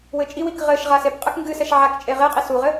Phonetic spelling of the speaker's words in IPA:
wɘt͡ʃʼiwik ʁɘʃ ʁasepqʼɛk ŋɡɨsɛʃ ʕak t͡ʃʼeʁeqʼi suʁɘ

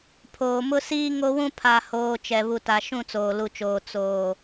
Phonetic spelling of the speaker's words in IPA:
pʰoː˨mʊ˦siː˦ ŋo˦wũ˦ pʰa˨hoː˨ t͡ʃɛ˨βu˨ta˨ ʃũ˦˨t͡soː˨lu˨t͡ʃoː˨ t͡soː˨

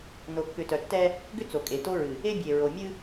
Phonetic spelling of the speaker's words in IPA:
no˨kːʏ˨ tœ˨tːɛ˦ | ɡʏ˦ t͡so˨kʼe˨to˦ɹɨ˨ | e˦bʲe˨ɹo˨ mʲɨ˦

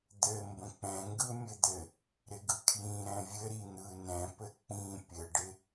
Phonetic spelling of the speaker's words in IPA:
d̪ɘ mbə̃k͡pɛ̃ŋɡɯ mʲɘd̪ɘ | ɾɪɡɯkʰjĩ ɾɛ̃vʲɘ ɾin̪ɯ nɛ̃pɘ k͡pĩ pʲɘɖɪ

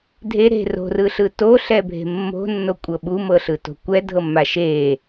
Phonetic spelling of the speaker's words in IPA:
dʱe ɾe̤ ro̤rɯɬɯ toɬɛbʱe̤ mːo̤nːokʷʼɤ ɓumɤɬɯto̤ kʷɛdʱɤmːa ʃe

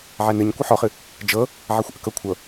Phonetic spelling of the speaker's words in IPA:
ʕɛnɨɲ kʷɨħɔχɨ | d͡ʒɤ | ʕɛxʷʔəkɤkʷʰɤ

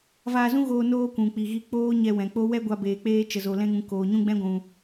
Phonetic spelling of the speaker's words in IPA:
vaː˧zũ˦ɣoː˧ noː˦kʷũ˨k͡pi˨ɣi˧ k͡poː˦ ɲɛ˧wɛ̃˨k͡po˦ wɛ˦ɡʷa˧beː˨k͡peː˧ t͡ʃə˨zo˨ lɛ̃˧ŋũ˨ koː˨ɲũ˦ɡ͡bɛ̃˦ɡʷũ˨

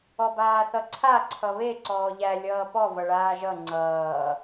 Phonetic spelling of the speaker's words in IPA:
ɔbaːθʌǀʰa ǀʰʌβe ǀɔːʎæ lʲʌːpɔ vʌɭaːʒʌ ŋ͡ǀʌː

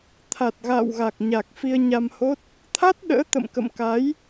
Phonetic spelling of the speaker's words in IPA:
t̪ʰa˨˩t̚ɣa̰ː˧˨wɣa˨˩k̚ɲa˨˩k̚ fi˧ə̯ɲa˧mho˦˥t̚ | t̪ʰa˦˥t̚ ɗə̰ː˧˥t̪ə̰˧˨mkə̰˧˨m ka˨˦j

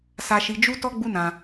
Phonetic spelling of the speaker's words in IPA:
sa˧ʃi˧ d͡ʒu˦ tɔ˦ɡ͡bu˦ nã˧

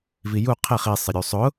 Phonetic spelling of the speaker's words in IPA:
viju qʰeχ i sˤɪɾʲusˤʊ

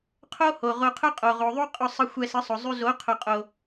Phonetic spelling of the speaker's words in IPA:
qʰo˦ ho˨ʁo˧qʰʊ˦ qʼo˨ʁo˨ðˤu˦ qʼʊ˧sˤə˧ xʷɛ˧sə˨˦sˤʊ˨zˤʉ˧ zo˨˦qʰʊ˨qʼo˨

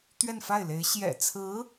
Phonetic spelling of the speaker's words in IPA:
t̪ɥɛ˥˧nfa˥˩ɪ̯le˧˥ɪ̯ ɕjɛ̰˨˩t͡sʰɹ̩˧˥

